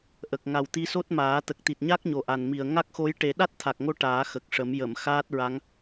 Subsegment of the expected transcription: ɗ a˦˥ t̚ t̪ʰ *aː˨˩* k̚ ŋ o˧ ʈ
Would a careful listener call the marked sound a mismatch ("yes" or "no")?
yes